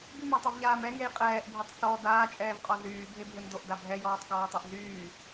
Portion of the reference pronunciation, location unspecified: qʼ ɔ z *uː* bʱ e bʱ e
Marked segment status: incorrect: yː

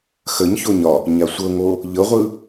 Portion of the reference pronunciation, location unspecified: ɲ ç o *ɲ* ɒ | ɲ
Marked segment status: correct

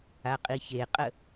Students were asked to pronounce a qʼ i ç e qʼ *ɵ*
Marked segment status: incorrect: ə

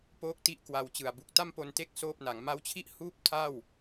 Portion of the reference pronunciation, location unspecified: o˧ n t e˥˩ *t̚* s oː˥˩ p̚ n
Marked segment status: incorrect: k̚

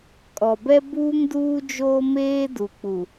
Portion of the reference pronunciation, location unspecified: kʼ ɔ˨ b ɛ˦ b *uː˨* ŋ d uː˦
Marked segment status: incorrect: uː˦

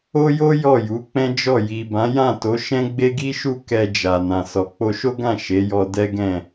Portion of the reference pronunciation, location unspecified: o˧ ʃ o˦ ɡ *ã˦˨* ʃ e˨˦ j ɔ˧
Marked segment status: correct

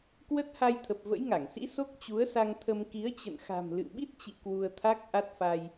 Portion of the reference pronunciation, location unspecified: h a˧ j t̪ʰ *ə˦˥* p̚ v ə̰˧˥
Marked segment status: incorrect: ə˨˩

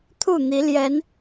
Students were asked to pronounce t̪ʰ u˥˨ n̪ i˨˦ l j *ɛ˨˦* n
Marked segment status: correct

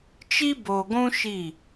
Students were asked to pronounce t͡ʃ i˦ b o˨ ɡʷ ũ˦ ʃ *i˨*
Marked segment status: incorrect: i˦˨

